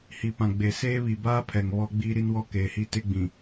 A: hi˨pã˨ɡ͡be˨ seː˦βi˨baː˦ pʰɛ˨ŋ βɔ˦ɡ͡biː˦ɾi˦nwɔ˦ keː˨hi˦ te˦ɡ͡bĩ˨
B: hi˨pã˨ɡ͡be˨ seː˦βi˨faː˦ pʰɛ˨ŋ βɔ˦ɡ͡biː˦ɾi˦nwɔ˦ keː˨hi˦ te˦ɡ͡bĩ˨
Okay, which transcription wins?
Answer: A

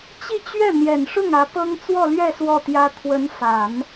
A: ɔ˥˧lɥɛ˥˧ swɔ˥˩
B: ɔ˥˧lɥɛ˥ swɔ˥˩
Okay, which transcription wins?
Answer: A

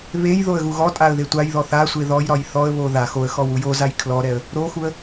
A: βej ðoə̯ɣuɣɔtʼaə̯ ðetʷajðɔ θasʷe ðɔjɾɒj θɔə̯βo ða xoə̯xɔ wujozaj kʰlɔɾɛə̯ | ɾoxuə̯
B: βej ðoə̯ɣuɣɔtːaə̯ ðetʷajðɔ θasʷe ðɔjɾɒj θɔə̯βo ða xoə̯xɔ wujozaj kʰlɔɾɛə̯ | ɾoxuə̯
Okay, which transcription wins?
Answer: A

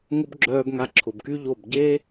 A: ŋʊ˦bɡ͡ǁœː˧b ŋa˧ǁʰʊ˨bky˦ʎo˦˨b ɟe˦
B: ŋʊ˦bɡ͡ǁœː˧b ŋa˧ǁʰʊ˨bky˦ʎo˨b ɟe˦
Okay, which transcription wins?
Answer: A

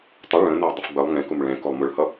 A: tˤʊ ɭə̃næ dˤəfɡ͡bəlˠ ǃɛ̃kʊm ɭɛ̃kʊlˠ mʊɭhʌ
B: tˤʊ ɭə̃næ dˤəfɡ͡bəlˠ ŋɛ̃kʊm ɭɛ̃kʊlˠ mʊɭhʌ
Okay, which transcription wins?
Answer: B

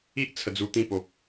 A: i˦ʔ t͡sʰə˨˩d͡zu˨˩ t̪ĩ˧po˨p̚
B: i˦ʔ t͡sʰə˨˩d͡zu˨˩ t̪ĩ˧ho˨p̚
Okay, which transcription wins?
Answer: A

